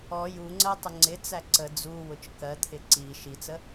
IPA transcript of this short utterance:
ɔ j u ŋ͡ǀ ɜ tˤ ə ŋ͡ǀ ɪ t͡s æ ǀ ə d͡z u w ʊ t͡ʃ k ɜ t̪ʰ ɪ ǀ i ʃ i t͡s ə

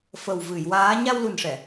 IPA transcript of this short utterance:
f ə˨˩ w v ɨ˨˩˨ j w aː˧˥ ɲ a˧ w l u˨˩ n ʂ ɛ˨˩˨

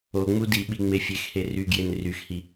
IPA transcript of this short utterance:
o ŋ͡m u d i ɓ i ŋ͡m e fʲ e x h e r y ɡ j e n r y x h i

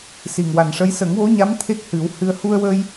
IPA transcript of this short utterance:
s i˨˩ ŋ w a˨˩ n ʂ ə˧˥ j s ə˨˩˦ ŋ w o˧˥ ɲ a˧˥ m t̪ʰ e˦˥ k̚ h ɨ˨˩˦ w h ɨ˧ ə̯ h u˧ ə̯ w ə˧ j

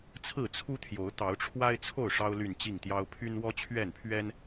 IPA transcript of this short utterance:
t͡sʰ ɹ̩˥˨ t͡sʰ u˦ t̪ʰ j o˨˦ ʊ̯ t̪ ɑ˨˦ ʊ̯ ʈ͡ʂʰ w a˦ ɪ̯ t͡sʰ o˥˨ ʊ̯ ʂ ɑ˦ ʊ̯ l y˥˨ n t͡ɕ i˥˨ ŋ t̪ j ɑ˦ ʊ̯ pʰ y˦ n w ɔ˦ t͡ɕʰ ɥ ɛ˥˨ n pʰ ɥ ɛ˦ n

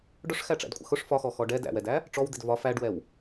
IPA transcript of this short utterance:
ɖ ʊ ʂ x æ ʈ͡ʂ æ̰ d kʷʼ ə̰ x ʊ ʂ f ɒ x ɔ x ɔ ɖ ɛ d æ̰ w ɛ d æ | ʈ͡ʂ ɔ w d̪ ɪ d v ɒ f æ ɖ w ɛ w

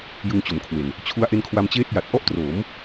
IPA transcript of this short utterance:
j ɯ˧ ŋ t͡ɕ o˩˦ m kʰ w e˨˩ n | t͡ɕʰ u˦˥ a̯ ʔ e˦˥ n kʰ w a˧ m t͡ɕ eː˥˩ t̚ j a˨˩ t̚ ʔ ɔ˥˩ ʔ t r oː˩˦ m

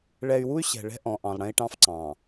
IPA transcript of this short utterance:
ɭ ɛ˨ y̯ w u˦ y̯ ɕ ɛ̤˨ ɭ ɛ̤˦ ʔ ɔ̃˨ ʔ ɑ̃˨ lˠ ɽ ɛ̃˦ i̯ ʈ ɑ̃˦ f ǀ ɑ̃ː˨

